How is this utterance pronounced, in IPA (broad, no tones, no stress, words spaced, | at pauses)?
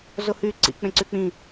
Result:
zohyǀḭ k͡pẽǀyk͡pĩ